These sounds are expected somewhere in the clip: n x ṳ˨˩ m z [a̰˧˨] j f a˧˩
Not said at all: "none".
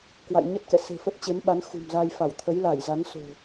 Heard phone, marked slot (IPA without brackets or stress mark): a˧